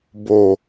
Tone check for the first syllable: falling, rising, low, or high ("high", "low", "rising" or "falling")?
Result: low